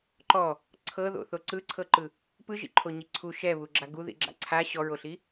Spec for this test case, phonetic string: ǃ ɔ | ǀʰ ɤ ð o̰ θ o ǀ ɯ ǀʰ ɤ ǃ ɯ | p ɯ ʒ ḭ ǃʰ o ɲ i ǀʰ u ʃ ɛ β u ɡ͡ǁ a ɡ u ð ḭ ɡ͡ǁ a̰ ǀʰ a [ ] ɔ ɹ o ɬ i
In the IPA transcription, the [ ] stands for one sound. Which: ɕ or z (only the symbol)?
ɕ